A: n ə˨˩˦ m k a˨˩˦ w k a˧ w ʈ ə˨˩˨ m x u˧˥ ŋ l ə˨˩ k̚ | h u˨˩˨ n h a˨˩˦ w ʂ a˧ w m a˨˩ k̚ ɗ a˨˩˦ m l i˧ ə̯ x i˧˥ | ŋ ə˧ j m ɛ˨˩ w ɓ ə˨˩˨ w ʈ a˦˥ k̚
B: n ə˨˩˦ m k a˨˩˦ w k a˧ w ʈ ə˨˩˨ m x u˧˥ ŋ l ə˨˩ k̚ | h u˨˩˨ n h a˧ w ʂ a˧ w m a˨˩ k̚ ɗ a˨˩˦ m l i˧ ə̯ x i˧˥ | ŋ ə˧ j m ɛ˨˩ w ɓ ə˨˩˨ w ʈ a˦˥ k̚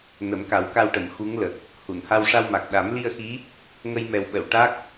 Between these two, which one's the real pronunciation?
B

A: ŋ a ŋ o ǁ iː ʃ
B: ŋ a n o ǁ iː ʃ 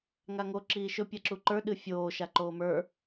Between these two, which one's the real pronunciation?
A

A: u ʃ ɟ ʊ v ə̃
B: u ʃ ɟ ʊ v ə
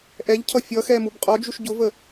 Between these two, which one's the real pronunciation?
B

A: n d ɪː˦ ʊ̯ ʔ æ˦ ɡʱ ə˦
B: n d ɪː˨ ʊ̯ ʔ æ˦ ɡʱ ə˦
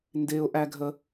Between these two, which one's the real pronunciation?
A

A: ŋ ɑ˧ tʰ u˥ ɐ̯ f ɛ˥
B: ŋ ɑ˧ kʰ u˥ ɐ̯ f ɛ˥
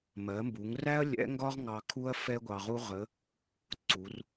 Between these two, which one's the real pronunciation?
B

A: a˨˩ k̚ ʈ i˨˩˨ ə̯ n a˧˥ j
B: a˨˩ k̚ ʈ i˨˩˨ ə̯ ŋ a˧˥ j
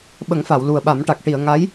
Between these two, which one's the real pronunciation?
B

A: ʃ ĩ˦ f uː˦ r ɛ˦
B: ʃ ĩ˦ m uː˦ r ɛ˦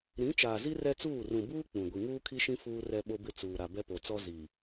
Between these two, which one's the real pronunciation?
A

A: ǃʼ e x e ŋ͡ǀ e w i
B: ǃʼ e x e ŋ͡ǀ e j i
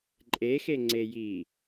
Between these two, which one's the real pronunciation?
B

